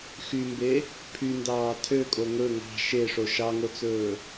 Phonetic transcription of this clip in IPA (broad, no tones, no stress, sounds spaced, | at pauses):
x y m b e | pʰ y n d ɑː tʰ ø kʼ o ŋ ɵ ŋ ɑ̤ ʃ e ʂ o ʃ ɑ ŋ o t͡s ɵː